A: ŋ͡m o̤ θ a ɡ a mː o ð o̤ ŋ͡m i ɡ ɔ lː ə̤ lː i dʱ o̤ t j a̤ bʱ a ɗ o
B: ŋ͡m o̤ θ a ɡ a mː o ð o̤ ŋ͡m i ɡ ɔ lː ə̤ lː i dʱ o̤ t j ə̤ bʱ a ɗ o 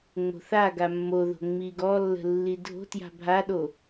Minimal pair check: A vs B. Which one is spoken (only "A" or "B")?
A